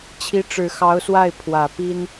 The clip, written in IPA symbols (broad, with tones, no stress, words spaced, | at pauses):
t͡ɕʰi˧˥ʈ͡ʂɻ̩˨˩xɑ˧˥ʊ̯swa˥˩ɪ̯ pʰwä˨˩ pi˥n